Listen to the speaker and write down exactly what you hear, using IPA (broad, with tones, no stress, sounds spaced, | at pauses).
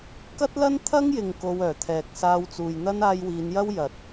k ɐ˥ t̚ l ɐ˥ n t̪ʰ ɐ˥ ŋ j ɪ˨ ŋ k o˧ w œː˨˩ t̪ʰ ɛː˨ k̚ s aː˧ w t͡s uː˨ j n̪ ɐ˥ n aː˧ j w iː˨˧ n j ɐ˥ w j ɐ˨ t̚